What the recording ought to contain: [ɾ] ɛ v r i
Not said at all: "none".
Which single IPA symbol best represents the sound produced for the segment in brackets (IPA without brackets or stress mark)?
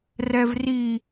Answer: r